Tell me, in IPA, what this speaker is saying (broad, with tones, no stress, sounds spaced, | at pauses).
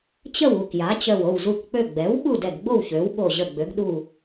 t͡ɕ ə˥˨ w u˧˩ k j a˩˥ t͡ɕ œ˧˩ w o˧˩ w z u˧˩ k k͡p ø˧˩ ɡ͡b ɛ˩˥ w ɓ u˥˨ d ɛ˧˩ ɡ ɡ͡b o˥˨ w ç ø˩˥ w ɓ o˧˩ ʑ ə˧˩ ɡ͡b ø˩˥ ɡ ɗ u˧˩